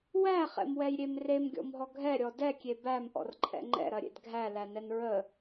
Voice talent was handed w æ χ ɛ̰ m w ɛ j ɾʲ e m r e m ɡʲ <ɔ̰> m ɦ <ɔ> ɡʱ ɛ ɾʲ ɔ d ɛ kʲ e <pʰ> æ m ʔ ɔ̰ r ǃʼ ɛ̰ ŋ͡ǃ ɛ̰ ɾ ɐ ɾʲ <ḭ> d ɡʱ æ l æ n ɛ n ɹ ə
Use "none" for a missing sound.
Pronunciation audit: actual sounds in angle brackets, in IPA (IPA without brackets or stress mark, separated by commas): ɔ̰, ɔ, b, ḛ